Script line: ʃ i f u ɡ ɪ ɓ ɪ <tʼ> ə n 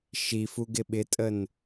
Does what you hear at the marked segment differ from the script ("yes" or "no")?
no